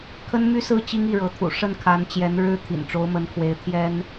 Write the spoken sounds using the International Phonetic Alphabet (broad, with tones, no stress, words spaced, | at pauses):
kʰə˥n my˥sɹ̩˥˩ t͡ɕi˥ŋi˥˩ɻɤ˧˥t̪ʰṵ˨˩ ʂə˥˩nkʰa˧˥n t͡ɕjɛ˧˥n ɻɻ̩˥ t̪ʰḭ˨˩nʈ͡ʂo˧˥ʊ̯mə˧˥nkʰwe˧˥ɪ̯ t̪ʰjɛ˥n